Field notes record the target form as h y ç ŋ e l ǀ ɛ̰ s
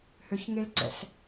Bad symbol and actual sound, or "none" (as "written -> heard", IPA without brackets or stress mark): y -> ø